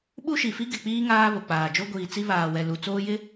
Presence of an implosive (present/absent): present